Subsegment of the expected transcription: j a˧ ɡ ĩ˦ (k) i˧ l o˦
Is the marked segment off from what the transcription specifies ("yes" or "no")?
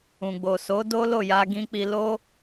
yes